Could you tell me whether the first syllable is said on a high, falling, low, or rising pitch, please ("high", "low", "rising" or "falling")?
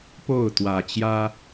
falling